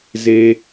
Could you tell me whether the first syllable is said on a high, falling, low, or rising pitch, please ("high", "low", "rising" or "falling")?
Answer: low